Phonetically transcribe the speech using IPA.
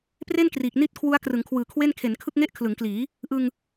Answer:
pre˥˩n kriː˨˩k̚ni˥˩t̚ kʰwu˦˥a̯krɯ˩˦ŋkʰwɯː˨˩kʰwe˥˩n kʰe˩˦nkʰɯ˥˩k̚ŋe˥˩ʔ kʰlɯ˩˦ŋkliː˩˦ | ʔɯ˧ŋ

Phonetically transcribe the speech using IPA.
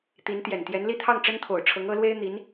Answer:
t̪i˧˥n t̪jɛ˨˩nt̪jɛ˧˥n li˥˧t̪ʰɑ˥˩ŋ ʈ͡ʂə˥nt̪ʰo˨˩ʊ̯ʈ͡ʂʰɤ˧˥ŋ ɤ˧˥lwe˥ɪ̯n̪i˧˥n

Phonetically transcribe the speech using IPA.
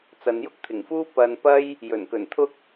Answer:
t͡sɐ˨njʊ˥k̚ t̪ʰɪ˨˩ŋfuː˥ pɐ˧n pɐ˥j | jɵ˨˩nkɵ˨˩nt̪ʰʊ˥k̚

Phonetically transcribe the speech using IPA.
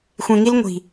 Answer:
xʷẽ˨ŋi˦l ŋʷi̤˨

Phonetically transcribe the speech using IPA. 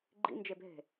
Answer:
ɡ͡ǃḭnd͡ʒebɦe̤

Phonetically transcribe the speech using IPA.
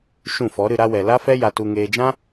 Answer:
ʃũ˦˨fɔ˨˦ɾɨ˧ ɾa˧wɛ˨ la˦fɛ˦ ja˧tu˧ŋeː˧ d͡ʒã˦

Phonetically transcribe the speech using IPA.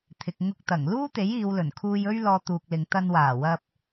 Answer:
t̪ʰɪ˨k̚ŋʊ˧k̚t̪ɐ˨˩ŋ luː˥t̪e˨˥j iː˨˧wlɵ˨˩n kʰuː˧jɵ˥ɥ lɔː˧t̪uː˨k̚lɪ˨ŋ t̪ɐ˧nwaː˨˩wɐ˧p̚

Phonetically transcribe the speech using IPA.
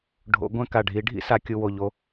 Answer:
ɖʱo̰˨˦ɡʷɛ̃˦ ka˨ɖʱi˨˦ ɖʱḭ˦sa˨kʲu˨ wo˨ʎo˧

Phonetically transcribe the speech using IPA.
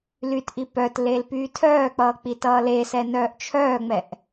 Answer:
lytʔi pœtlel pyːtʰœːk͡pʌː k͡pitʌːlesɛ nœːʔt͡ʃʰœːŋ͡mɛʔ

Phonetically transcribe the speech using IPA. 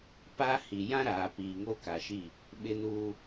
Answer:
pa˦hi˨ jã˦ ɾaː˨piː˨ŋo˦ ka˨ʃi˦˨ | ɓɪ˦nuː˦

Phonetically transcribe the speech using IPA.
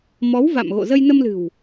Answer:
mɔ˨˦wva̰˧˨mɣo̰˧˨zə˧j nə˧mlɨ̤˨˩w

